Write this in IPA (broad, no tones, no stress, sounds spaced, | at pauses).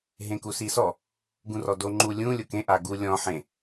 ɦ ẽ k u s i s ɔ | ɡ ũ r ɔ d o ŋ͡ǃ u lʲ ũ lʲ ʊ k ẽ ʔ a ɡ u lʲ ɔ̃ ħ ẽ